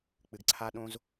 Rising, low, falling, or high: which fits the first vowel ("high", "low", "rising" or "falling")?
low